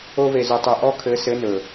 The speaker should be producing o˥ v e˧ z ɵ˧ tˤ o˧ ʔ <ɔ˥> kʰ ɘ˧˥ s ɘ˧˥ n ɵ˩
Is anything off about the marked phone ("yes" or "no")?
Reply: no